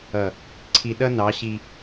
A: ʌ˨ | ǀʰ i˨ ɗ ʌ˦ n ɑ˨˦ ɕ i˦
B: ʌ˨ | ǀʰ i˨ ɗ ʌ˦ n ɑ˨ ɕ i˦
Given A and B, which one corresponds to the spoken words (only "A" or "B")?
A